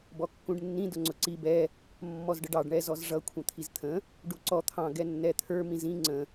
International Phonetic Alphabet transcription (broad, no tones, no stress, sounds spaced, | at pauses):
b ɔ kː ũ ɖ nː ĩ d ʊ ŋ͡ǀ ʊ ǀ i b ɛ | mː ɔ z ɖ ə ɖ ɑ ɖ ɳ ɛ z ɔ z ʐ ʌ kʷʰ ə̃ t̪ʰ i z t̪ʰ ə̃ | ɖ u ǀ ɔ t̪ʰ ɑ̃ ɡ ɛ nː ɛ t̪ʰ ə˞ m ĩ z ĩ ŋ͡ǀ ə̃